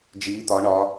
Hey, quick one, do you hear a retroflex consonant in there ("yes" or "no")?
yes